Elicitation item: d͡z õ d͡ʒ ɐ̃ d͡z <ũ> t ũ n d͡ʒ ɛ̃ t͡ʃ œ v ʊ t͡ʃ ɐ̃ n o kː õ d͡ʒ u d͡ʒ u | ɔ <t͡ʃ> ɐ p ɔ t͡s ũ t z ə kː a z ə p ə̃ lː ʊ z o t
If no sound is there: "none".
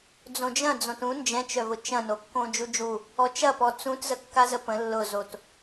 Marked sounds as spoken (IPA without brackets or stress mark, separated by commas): õ, t͡ʃ